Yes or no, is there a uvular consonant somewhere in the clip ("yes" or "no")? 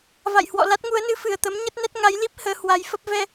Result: no